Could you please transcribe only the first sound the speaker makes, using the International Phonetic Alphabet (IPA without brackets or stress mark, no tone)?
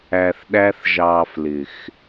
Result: æ